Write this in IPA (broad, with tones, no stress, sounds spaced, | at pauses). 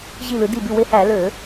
ʑ i˧˩ l ɯ˩˧ d i˧˩ b y˧˩ w e˧˩ h æ˧˩˧ l ø˧˩˧